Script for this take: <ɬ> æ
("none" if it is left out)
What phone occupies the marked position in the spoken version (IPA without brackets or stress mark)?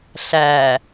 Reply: ɬ